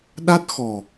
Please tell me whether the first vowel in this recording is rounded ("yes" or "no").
no